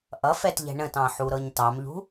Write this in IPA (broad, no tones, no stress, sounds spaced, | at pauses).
ʔ ʌ f ɛ t ʎ ɛ̤ ɳ ə̃ t ɑ̃ ħ u ɾ ɤ ɲ t ɑ m ʎ ṳ